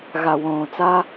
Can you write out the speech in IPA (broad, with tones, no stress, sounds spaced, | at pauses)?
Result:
ɣ a˧ w õː˧ t͡s a˦